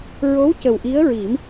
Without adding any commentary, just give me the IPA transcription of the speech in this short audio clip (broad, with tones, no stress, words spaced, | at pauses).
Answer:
ɹo˧˥w cə˨˩wʔi˧˥ə̯ɹi˨˩˦m